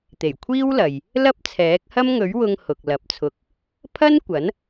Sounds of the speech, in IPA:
t̪ e˨˩ j kʷʰ iː˥ w l ɐ˨ j | l ɐ˥ p̚ t͡sʰ ɛː˨˥ k̚ h ɐ˥ m ŋ ɵ˨˥ ɥ w ʊ˧ ŋ h ʊ˨ k̚ l ɐ˨˥ p̚ t͡sʰ ʊ˧ k̚ | pʰ ɐ˥ n kʷ ɐ˨˥ n

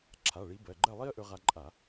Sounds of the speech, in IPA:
ǁʰ a˩˧˩ ɭ i˨˦ b ɜ˩˧˩ ɡ͡ǃ ɜ˥˨ lˠ i˥ ə̯ ʔ ɵ˥ ʁ a˥ ǃʼ a˧˩˧

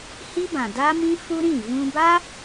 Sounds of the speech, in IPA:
h i˦ b ã˨ d a˦ m ĩ˦ f u˦ ɾ ĩ˦˨ v ũ˧ b a˦

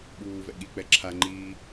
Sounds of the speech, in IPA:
ɓ uː v ɛ̰ ɠ i k͡p ɛ ǁʰ a ŋ͡ǃ iː

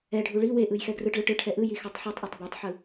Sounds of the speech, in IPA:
ɛ ɖʱ u ɭ i w e ʔ ɯ j x ɛ ɡ r ɯ ʈ ɭ ɯ ʈ ɯ ʈʰ ɛ ʔ ɯ j i x a tˤ ħ u tˤ ʔ a tˤ b e tˤ ħ ɯ

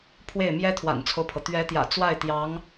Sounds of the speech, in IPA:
pʰ w e˥˩ ɪ̯ m j ɛ˥ t̪ʰ w a̰˨˩ n t͡sʰ o˦ ʊ̯ pʰ ɤ˩ t̪ ɥ ɛ˧˥ t̪ j ä̰˨˩ t͡s w a˥˩ ɪ̯ t̪ j ɑ˧˥ ŋ

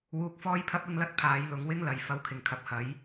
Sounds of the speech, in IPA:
w uː˧ k̚ f ɔː˥ j pʰ ɐ˥ p̚ ɪ˥ ŋ l ɐ˥ t̚ pʰ aː˨˧ j l ʊ˨˧ ŋ w ɪ˥ ŋ l ɐ˨ j f ɐ˧ w kʰ ɪ˨˩ ŋ kʰ ɐ˨ p̚ h ɐ˨˥ j

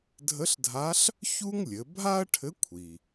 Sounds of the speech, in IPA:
dʱ ə˧˥ ɬ dʱ a˧˥ ɬ | ç u˥ ŋ lʲ ɘ˩˧ bʱ a˥ ɐ̯ ʈʰ ɘ˧˥ kʷʰ i˩

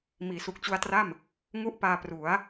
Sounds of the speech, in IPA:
m iː˩˦ s u˨˩ k̚ t͡ɕ u˧ a̯ t r a˥˩ m | ŋ u˥˩ ʔ p aː˧ p r u˩˦ a̯

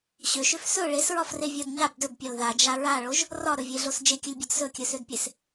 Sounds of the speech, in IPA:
ɕ ø ʃ ø f s ɵ ɭ e s ɹ ɒ f r e vʲ ɒ d ɲ a b d ɵ b pʲ ɒ l ð a d͡ʒ a ɹ a ɭ o ʒ | r ɒ ɾ ɵ vʲ e ɮ o s d͡ʒ e kʲ ɵ lʲ bʲ ɒ d s ɵ kʲ ɵ s ø d pʲ e s

